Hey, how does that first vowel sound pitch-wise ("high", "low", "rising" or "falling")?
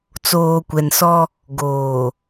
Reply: low